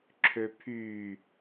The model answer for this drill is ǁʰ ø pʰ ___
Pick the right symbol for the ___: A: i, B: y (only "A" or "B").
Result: B